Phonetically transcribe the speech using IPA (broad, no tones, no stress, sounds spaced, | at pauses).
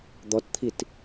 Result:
d̪ ɔ t t̪ʰ i t